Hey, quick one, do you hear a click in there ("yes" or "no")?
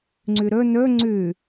yes